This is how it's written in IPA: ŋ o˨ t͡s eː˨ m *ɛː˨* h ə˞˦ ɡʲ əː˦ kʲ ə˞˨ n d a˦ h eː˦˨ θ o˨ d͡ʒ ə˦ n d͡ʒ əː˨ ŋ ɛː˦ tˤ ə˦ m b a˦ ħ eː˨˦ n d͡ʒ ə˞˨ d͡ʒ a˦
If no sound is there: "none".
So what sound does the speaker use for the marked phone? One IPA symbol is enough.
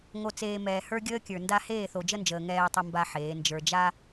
ɛː˨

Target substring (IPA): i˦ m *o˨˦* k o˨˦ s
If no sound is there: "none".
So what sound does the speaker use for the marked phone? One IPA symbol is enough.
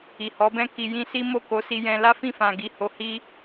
o˦˨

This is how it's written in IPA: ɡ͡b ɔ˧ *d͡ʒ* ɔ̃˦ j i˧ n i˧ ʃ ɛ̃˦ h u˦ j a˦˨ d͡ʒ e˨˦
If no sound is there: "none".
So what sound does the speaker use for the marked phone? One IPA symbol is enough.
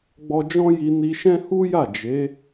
d͡ʒ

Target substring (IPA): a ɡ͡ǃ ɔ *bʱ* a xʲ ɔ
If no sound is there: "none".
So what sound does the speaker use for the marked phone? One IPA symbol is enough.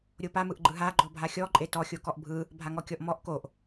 bʱ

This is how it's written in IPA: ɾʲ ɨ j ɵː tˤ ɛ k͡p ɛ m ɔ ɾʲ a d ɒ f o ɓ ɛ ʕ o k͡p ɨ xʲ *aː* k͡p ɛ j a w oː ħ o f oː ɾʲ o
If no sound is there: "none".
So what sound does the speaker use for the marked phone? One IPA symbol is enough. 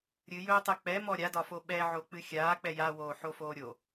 aː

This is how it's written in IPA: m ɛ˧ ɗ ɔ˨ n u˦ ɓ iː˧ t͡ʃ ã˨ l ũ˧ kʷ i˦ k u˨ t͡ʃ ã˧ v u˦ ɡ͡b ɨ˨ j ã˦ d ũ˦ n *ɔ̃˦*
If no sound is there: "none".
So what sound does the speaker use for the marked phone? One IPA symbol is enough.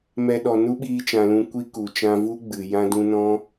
ɔ̃˦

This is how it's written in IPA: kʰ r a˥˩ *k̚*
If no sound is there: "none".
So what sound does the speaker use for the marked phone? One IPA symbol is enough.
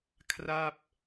p̚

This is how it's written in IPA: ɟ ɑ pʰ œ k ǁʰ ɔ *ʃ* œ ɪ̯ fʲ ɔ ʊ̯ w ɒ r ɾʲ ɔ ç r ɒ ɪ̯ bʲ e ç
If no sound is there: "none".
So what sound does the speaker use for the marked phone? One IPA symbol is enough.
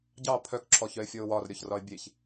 ç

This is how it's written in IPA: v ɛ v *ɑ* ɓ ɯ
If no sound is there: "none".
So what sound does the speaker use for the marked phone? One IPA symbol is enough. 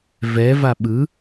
a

